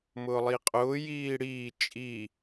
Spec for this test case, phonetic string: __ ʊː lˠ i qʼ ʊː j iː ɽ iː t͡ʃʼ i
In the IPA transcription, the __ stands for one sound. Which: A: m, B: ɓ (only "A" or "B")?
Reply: A